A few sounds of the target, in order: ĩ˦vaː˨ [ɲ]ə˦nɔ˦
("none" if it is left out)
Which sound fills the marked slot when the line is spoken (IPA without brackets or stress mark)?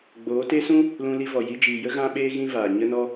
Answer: ɲ